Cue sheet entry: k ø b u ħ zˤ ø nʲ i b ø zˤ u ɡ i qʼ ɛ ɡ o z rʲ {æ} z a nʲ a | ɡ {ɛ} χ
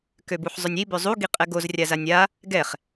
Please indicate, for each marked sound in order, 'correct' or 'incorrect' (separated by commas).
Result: incorrect, correct